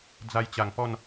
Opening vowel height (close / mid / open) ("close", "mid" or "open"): open